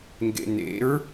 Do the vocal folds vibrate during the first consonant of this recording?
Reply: yes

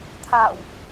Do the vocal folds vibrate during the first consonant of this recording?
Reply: no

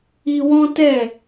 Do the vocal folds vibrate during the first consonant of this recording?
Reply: yes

